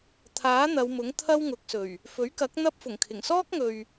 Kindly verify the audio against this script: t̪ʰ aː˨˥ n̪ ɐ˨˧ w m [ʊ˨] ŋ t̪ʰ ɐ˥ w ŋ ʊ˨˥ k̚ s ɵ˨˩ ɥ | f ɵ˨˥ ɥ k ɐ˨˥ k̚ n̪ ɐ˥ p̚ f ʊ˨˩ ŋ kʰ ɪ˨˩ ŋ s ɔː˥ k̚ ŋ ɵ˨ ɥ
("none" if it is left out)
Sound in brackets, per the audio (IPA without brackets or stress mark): ʊ˨˥